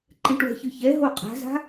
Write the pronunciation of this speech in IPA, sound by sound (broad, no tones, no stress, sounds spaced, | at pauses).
ǃ ɛ̃ ʈ w ɛ̤ ç ɯ ç ɛ ɦ o qʼ a̤ z a̤